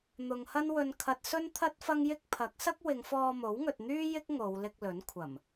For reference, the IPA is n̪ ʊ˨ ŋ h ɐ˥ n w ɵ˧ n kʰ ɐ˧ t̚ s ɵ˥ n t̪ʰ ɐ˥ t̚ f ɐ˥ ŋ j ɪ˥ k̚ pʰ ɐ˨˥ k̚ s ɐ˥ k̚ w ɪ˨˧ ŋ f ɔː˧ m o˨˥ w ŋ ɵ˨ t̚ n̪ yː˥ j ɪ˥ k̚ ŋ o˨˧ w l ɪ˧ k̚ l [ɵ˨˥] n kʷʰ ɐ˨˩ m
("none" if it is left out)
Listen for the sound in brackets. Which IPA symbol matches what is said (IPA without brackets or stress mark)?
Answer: ɵ˨˥